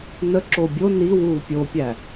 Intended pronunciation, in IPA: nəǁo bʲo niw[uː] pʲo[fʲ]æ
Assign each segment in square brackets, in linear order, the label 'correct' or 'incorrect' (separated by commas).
correct, incorrect